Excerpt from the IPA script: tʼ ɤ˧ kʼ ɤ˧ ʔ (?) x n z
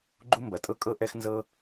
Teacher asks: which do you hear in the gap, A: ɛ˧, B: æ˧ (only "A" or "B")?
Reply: A